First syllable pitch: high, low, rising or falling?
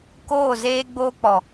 falling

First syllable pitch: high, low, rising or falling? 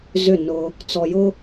falling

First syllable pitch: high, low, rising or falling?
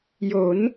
rising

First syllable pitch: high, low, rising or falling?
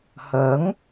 rising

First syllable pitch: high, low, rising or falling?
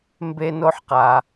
high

